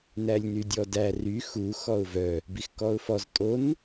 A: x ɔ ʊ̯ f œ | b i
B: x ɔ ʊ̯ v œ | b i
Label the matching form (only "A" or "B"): B